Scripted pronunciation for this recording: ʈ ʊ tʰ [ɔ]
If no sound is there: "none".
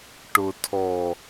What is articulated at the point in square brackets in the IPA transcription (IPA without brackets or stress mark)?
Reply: ɔ